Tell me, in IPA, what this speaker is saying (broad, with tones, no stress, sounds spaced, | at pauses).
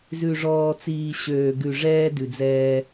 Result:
z ʉ˨ ʐ ɔː˨ t͡s iː˨ ɕ øː˨ ɡ ʉ˨ ʐ ɛː˦ d ʉ˨ d͡z ɛː˦